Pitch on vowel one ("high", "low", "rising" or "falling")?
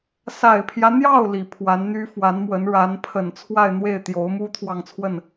low